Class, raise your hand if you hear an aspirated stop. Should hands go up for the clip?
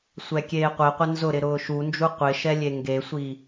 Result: no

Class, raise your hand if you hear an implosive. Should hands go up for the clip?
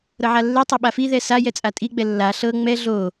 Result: yes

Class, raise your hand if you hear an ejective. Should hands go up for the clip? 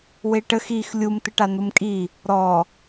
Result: yes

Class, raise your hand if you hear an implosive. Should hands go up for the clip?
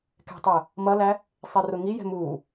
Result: no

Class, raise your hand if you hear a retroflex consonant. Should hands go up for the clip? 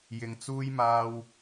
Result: no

